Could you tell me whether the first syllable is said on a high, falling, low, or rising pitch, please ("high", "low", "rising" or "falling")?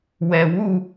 low